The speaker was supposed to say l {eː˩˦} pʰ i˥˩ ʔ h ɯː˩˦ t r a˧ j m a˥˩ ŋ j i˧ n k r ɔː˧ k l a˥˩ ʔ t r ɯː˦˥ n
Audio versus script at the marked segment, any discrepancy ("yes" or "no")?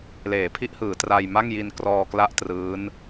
no